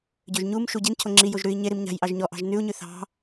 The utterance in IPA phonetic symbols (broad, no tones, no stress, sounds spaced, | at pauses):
ɟ ø ʒ ɲ u m ʃ u ɟ i n cʰ o ŋ͡ǁ i j o ʒ ɾ ʉ i̯ ɲ e ɾ i m ɲ a̤ j ʔ ɑ ʒ ɲ ɔ ʔ ɑ̤ ʒ n ʉ u̯ ɲ ʉ θ ɑ̤